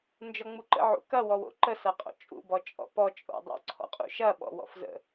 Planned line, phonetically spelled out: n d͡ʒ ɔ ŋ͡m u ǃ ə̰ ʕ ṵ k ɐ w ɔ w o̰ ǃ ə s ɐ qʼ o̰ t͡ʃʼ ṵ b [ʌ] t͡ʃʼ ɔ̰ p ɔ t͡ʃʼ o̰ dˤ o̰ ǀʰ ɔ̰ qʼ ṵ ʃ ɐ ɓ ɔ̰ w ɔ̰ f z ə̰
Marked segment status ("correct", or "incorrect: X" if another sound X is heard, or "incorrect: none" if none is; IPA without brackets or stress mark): incorrect: ɔ